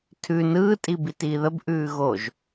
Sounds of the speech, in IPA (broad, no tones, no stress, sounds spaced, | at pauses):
tʰ ʉ n ɯː tʼ i b i t iː ð ə b ʔ ʉː ɣ o ʒ